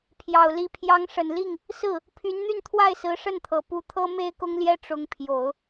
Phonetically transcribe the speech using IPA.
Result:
pʰjɑ˨˩ʊ̯li˧˥ pʰjɑ˧˥ŋʂə˨˩nli˥˩ŋ | sɹ̩˥˩ | pʰy˧˥nn̪y˥˧nt̪ʰwa˥˩ɪ̯ sɹ̩˧˥ʂə˥˩nt̪ʰɤ˨˩ pu˧˥t̪ʰɤ˥ me˥ɪ̯kʊ˥ŋljɛ˥ ʈ͡ʂʊ˧˥ŋpʰjo˨˩˦ʊ̯

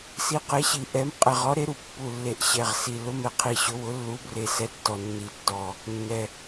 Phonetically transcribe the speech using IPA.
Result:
si˨˥qe˨˥ɕi˨˩ʔɛ˨˥m qʼɛ˨˩ʁɔ˨˥ɾe˨˥ɾu˨˩ pːu˨˩lːe˨˩ʔ ɕɛ˨˩ʁsi˨˩ lʊ˨˥mɛ˨˩qʰi˨˩ ɕʊ˨˥wʊ˨˥ lːu˨˥bre˨˩ sɛ˨˥tːɔ˨˩ nːi˨˩tːɔ˨˩ | nːɛ˨˩

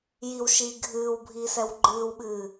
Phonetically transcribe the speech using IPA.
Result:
jiwʃiː ɡʱɨːwbʱiːsɛw ɡ͡ǃɨːwɓɨː

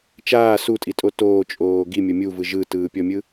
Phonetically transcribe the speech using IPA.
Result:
t͡ʃaː sutʼitʼo toːt͡ʃʼoː ɡimʲɤ mʲuvɯ ʒɯtɯːpʲɔmʲɯ

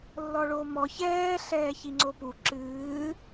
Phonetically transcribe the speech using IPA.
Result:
lːɔɭomɔ çɛː ɬɛːçiŋ͡ǀopu ǁɨː

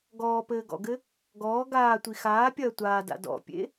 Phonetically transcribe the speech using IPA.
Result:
ɡɔːpɘːɡɔ̰ɡɘ | ɡɔː ɡaːtʷi xaːpʲɐː tʷaːda̰ dɔ̰pʲḛ

